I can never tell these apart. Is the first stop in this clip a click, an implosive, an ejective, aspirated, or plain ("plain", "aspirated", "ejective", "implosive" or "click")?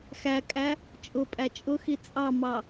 ejective